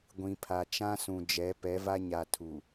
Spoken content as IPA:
ɡʷĩ˨pʰa˨ t͡ʃã˦sũ˨d͡ʒɛ˨˦ pɛ˨˦va˦ɲa˨ tʰu˨

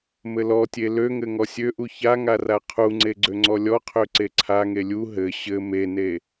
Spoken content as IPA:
mɘlɔtʲe løŋɘ ŋɔsʲøʔu çaŋa raqʰuŋ͡ǀe ɡ͡ǀøŋ͡ǀɔlʲɔqʰø ǀeǀʰaŋe lʲu ɦɘ ɕɘ mene

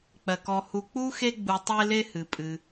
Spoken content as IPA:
k͡pɜ˩kɔ˨ hu˨ k͡pu˥xe˦ɡ͡bu˨ tˤe˦le˦ hɨ˩pʼɨ˩

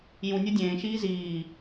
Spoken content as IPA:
jũ nʲodʲẽːʃiː ziː

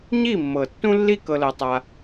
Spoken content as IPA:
ɲi˦˨mːɤ˨tːũ˦lːi˦ kɤ˧lɤ˧tˤa˧

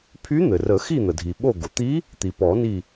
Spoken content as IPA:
pʰy˧˥ n̪ɘ˩rə˨˩˦ xi˦˨n̪ə˩dʱi˩ ɓo˦˨ɡo˩ t̪i˧˥ | t̪i˩pɔ˨˩˦ni˦˨

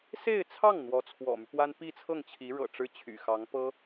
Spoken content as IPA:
se˥˧ɪ̯t͡sʰɑ˥˩ŋ n̪wɔ˧˥t͡sʰwɔ̰˨˩my˦pwa˥n pi˥˧t͡sʰɤ˥˩ŋt͡ɕʰi˧˥ ɻɤ̰˨˩ ʈ͡ʂɻ̩˥t͡ɕʰy̰˨˩xɑ˧˥ŋ pɤ˥

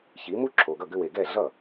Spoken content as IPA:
çi˩˥mu˥ǁʰo˩ɡʌ˥˩ ɡʏ˧we˩ɡɛ˥˩ɮʌ˥˩

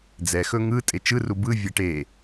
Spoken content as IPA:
d͡zɛ xɵŋɯ tʼet͡ʃɯru bɯvʲɛ ʈe

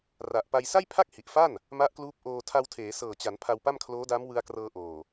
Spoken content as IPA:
ra˨˩ʔpa˧j sa˥˩jpʰa˥˩k̚hi˨˩ʔfa˥˩n | ma˦˥ʔkluː˦˥p̚ʔoː˧ tʰa˧wtʰeː˩˦ sɤː˨˩t͡ɕa˩˦n pʰa˧wpa˥˩mkʰloː˦˥da˦˥m wɯ˧a̯krɤː˧ʔoː˨˩

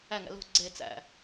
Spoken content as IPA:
æŋæ̰ lo̤ ɡ͡ǀe t͡sæ̰

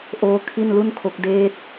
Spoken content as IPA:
ʔoː˦˥ kʰi˥˩nlu˥˩nkʰo˦˥k̚ deː˦˥t̚

